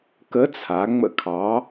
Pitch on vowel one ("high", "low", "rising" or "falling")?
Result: rising